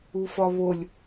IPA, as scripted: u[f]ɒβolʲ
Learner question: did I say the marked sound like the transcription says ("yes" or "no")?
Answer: yes